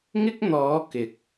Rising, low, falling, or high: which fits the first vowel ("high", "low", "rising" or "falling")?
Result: high